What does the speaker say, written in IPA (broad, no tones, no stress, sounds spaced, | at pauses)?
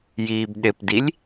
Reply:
j iː b ɗ ɪ p d i lʲ